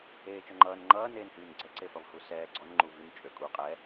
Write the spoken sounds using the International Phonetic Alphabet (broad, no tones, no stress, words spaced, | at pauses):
eːt͡ʃɔŋ͡ǃʌːn ŋ͡ǃʌː neːnhyːnɡ͡ǀɛ ǀefʌvhusɛː ɡ͡ǀɔn ŋ͡ǃuvyn t͡ʃʼøkʼu qʼɛ